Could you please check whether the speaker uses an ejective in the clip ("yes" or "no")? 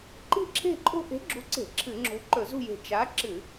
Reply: yes